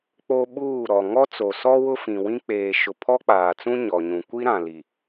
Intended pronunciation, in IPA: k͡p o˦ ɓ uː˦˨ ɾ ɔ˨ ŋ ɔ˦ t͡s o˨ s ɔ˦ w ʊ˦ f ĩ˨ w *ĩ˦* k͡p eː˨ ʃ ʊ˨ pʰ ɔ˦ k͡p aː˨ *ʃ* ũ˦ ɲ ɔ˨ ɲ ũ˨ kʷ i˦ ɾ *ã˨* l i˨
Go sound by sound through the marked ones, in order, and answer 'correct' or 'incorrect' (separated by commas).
correct, incorrect, correct